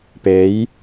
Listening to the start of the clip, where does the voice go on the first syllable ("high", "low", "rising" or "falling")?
rising